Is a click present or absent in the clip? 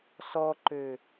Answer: present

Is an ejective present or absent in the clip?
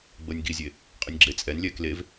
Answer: present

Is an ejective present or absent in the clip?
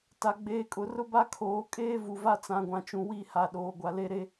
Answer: present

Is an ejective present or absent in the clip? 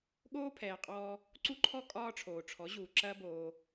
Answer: present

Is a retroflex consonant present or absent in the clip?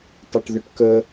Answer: present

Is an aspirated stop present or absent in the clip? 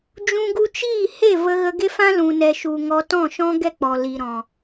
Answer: absent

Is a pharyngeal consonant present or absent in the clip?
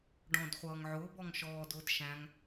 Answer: present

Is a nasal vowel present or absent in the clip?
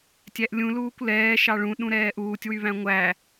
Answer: present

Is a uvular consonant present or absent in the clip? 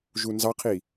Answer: present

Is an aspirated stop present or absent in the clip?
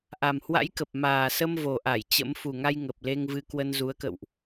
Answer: absent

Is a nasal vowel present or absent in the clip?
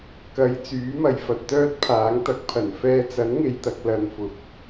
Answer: absent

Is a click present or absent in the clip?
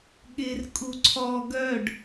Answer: present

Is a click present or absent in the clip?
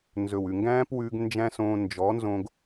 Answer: absent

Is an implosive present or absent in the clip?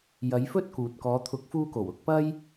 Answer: absent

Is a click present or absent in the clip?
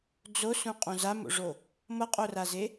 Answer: absent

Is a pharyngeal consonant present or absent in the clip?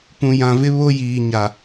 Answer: absent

